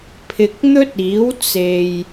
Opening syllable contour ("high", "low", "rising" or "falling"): low